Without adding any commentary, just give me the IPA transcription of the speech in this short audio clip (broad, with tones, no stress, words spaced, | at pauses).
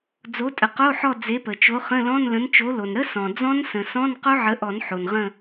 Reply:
d͡zo˨˥tʼə˩qo˧˥˧ħɔ˦˨ d͡ze˨˥pə˩t͡ʃo˨˥χə̃˧˥˧ lɔ̃˧˥˧nlə̃˨˥nt͡ʃo˨˥ lo˩nɾə˦˥ sɔ̃˩ d͡zɔ̃˦˥nsə̃˩sɔ̃˧˥˧n qo˦˥ ʕə˨˥ʔɔ˨˩˦n ħo˩nʁə̃˦˨